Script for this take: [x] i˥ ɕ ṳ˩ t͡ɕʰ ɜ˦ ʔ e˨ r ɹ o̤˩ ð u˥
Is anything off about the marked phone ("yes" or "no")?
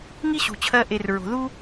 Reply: yes